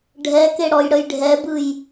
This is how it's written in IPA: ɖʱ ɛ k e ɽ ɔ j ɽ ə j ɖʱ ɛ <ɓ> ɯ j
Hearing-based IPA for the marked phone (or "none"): b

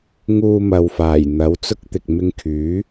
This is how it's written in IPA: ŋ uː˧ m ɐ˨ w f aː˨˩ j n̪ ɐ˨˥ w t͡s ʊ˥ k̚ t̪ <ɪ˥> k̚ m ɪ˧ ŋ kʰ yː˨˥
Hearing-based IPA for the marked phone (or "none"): ɪ˨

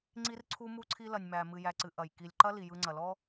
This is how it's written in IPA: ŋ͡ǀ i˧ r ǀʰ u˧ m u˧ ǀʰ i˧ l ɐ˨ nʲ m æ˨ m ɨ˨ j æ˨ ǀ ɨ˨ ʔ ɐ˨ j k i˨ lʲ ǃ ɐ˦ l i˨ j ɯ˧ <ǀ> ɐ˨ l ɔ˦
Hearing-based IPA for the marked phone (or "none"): ŋ͡ǀ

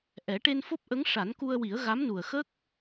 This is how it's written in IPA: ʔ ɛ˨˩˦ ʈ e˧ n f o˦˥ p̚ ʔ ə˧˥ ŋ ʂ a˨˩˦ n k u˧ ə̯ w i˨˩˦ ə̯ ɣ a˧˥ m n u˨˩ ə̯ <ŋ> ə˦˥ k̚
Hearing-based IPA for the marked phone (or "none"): x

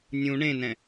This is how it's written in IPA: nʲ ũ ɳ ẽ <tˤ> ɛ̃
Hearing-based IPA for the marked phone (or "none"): n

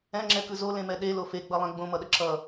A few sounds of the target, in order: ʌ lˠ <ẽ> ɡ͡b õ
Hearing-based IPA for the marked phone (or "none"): ɛ̃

